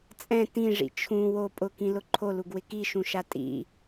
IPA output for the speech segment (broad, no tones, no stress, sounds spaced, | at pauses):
t͡sʼ ɛ̃ t ĩ ʐ ḭ t͡ʃʰ ũ w o pʼ ʊ k ĩ l ʊ ǃʰ o l u ɡ w ɪ k i ʃ ũ ʃ a tʼ ḭ